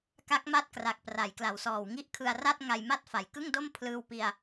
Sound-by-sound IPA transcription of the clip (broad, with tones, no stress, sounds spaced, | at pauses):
k a˦˥ k̚ m a˦˥ t̚ k r a˨˩ k̚ p r a˩˦ j k l a˩˦ w s ɔː˨˩ w ŋ i˦˥ ʔ kʰ ɯ˧ a̯ r a˥˩ t̚ ŋ a˧ j m a˦˥ t̚ f a˩˦ j k ɯ˥˩ ŋ d o˥˩ m pʰ l ɯː˧ w p i˧ a̯